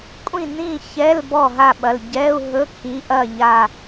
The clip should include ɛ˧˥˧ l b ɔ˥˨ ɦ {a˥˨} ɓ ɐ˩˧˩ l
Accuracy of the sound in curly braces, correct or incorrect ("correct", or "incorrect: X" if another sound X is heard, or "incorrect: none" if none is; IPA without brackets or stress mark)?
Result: correct